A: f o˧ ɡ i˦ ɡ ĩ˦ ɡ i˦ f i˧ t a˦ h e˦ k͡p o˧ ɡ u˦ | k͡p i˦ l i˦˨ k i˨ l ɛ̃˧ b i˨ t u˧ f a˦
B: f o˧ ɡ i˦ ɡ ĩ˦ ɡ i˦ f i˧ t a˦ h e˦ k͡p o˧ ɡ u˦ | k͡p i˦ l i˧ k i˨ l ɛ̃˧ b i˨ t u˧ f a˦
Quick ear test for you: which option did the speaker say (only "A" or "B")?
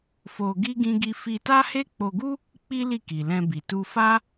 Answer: A